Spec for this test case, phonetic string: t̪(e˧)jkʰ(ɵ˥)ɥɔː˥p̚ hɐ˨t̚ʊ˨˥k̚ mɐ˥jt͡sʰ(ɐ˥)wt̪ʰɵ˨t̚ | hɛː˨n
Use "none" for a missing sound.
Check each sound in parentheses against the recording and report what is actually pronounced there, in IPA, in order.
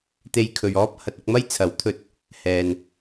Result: e˧, ɵ˨, ɐ˨˥

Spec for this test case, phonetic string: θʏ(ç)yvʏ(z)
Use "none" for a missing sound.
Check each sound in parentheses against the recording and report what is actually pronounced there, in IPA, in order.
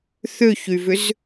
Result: ç, z

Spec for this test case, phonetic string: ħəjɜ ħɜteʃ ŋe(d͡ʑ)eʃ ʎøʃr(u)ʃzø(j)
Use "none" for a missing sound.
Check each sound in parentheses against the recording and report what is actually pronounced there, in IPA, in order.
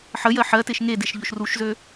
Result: d, u, none

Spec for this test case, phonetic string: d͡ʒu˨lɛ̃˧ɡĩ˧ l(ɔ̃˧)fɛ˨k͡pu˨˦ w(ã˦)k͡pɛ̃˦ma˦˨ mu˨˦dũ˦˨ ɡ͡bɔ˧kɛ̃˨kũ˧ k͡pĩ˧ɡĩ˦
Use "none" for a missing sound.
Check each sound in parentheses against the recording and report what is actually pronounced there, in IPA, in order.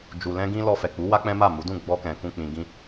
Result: ɔ˧, a˦

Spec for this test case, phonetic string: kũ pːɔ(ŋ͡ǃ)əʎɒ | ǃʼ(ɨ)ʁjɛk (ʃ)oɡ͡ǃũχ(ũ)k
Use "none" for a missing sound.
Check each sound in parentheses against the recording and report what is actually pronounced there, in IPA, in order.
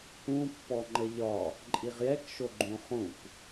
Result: ŋ͡ǃ, i, ʃ, ũ

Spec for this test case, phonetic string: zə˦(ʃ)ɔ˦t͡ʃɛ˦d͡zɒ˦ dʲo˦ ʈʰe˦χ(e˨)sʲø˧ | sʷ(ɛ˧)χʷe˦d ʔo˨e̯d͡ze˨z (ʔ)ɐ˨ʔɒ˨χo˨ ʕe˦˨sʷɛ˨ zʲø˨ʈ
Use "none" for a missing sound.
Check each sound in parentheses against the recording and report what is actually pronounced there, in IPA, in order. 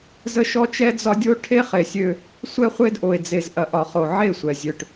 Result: ʃ, e˨, ɛ˦, ʔ

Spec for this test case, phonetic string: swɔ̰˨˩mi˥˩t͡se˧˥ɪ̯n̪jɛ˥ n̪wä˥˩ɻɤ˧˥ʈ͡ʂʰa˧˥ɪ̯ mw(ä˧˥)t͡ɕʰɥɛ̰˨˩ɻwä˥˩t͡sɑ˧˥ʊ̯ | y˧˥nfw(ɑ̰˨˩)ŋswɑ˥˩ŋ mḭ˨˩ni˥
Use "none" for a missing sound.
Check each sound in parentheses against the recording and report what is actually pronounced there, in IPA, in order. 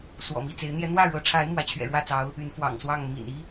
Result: ä˧˥, ɑ̰˨˩

